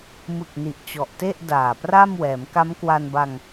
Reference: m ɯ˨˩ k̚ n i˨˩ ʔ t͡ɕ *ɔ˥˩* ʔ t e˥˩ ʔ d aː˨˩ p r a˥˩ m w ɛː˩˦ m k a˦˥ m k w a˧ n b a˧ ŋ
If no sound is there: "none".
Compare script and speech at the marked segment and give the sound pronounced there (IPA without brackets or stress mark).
ɔ˨˩